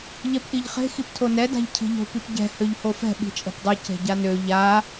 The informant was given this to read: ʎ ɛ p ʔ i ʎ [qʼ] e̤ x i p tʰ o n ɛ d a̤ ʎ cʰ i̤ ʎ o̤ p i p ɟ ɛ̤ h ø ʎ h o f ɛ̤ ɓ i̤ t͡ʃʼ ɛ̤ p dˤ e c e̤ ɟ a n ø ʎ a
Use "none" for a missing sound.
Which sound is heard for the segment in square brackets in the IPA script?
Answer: χ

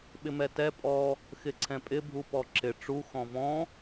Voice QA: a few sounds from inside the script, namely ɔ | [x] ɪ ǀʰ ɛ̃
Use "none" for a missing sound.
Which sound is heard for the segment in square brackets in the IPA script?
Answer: x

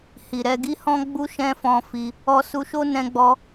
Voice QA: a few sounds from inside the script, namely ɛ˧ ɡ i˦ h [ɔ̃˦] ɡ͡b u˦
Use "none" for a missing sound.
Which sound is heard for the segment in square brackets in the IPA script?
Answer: ɔ̃˦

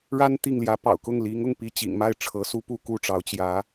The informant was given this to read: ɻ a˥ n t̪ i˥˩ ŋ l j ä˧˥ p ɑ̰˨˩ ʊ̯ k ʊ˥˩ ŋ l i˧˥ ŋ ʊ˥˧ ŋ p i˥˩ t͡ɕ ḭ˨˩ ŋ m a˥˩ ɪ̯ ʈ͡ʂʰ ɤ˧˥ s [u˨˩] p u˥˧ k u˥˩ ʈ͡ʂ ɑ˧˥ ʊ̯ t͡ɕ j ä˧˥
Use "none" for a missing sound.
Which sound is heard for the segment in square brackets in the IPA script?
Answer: u˥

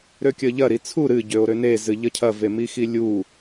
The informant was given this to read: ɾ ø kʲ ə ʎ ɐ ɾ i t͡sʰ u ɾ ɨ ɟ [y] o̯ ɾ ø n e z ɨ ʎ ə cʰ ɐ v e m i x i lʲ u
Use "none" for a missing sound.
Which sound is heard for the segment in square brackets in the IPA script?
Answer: ø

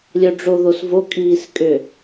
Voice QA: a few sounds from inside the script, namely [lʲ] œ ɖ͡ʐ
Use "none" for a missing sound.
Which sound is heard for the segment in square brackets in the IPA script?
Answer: lʲ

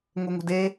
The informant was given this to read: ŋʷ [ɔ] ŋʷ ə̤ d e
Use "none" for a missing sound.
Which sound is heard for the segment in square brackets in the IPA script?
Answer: ɤ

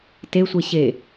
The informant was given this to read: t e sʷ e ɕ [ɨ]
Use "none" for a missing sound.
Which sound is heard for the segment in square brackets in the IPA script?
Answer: e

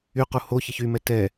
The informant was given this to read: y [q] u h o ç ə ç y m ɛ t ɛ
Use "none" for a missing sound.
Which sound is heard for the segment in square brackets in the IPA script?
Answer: q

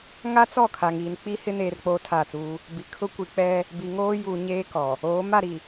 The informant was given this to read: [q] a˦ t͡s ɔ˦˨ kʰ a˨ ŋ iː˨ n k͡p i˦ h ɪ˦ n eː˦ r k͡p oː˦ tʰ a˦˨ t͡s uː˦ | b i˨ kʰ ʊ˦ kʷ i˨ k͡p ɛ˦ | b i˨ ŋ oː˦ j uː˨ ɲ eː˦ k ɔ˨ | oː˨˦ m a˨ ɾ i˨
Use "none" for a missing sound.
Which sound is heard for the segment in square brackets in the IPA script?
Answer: ŋ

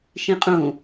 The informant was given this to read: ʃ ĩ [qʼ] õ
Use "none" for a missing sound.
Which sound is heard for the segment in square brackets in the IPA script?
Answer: qʼ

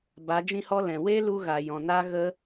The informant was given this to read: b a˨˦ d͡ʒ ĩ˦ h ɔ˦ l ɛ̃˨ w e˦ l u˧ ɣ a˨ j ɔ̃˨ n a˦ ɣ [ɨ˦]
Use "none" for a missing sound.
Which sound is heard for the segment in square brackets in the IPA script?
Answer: ə˦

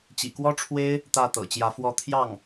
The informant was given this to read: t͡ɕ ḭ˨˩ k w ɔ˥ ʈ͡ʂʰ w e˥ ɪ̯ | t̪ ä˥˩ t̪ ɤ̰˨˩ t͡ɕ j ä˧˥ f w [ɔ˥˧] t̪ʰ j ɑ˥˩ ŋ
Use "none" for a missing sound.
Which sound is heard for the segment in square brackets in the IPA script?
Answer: ɔ˥˧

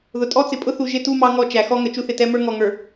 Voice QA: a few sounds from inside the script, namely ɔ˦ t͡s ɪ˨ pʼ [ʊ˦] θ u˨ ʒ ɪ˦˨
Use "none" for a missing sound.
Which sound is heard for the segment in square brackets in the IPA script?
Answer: ʊ˦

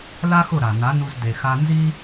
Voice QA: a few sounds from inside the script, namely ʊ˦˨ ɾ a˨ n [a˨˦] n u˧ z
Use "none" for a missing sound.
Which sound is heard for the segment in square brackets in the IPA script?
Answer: a˨˦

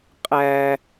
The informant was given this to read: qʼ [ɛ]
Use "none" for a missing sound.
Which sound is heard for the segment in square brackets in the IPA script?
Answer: æ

